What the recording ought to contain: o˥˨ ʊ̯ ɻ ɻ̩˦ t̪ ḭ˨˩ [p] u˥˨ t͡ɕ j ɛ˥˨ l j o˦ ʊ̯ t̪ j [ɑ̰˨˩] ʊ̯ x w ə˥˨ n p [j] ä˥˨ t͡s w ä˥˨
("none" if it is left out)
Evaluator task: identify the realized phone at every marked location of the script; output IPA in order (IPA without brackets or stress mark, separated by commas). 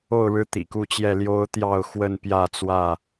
k, ɑ˥˨, j